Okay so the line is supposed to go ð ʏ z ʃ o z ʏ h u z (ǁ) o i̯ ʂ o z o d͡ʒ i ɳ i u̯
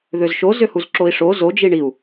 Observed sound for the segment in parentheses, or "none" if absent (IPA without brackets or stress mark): ǁ